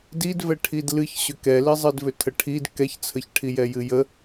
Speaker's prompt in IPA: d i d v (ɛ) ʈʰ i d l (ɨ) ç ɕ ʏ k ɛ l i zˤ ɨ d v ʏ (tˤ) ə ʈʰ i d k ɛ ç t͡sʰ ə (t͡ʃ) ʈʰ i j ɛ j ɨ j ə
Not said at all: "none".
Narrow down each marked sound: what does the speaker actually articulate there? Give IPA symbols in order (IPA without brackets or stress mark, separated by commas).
ɛ, ɨ, tʰ, ç